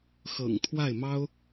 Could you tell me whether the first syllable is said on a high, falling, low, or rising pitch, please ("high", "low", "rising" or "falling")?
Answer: low